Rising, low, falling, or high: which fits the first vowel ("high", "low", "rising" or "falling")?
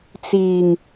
low